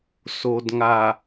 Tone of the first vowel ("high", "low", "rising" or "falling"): low